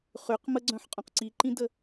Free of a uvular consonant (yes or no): no